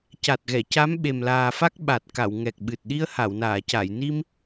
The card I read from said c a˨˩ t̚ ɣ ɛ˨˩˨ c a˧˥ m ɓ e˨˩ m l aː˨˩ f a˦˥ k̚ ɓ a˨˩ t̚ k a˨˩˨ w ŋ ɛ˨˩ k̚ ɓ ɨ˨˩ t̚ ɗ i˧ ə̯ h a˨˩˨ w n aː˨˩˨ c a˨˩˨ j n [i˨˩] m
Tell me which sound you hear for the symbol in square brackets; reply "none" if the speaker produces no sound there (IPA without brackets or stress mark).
i˧